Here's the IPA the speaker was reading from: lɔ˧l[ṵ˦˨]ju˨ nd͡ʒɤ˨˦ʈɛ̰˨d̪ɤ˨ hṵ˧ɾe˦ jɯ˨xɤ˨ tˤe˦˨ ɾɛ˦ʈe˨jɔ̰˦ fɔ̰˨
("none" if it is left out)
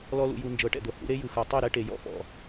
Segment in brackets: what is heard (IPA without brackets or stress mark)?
ṵ˨